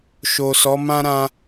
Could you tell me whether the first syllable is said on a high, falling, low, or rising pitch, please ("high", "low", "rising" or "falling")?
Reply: low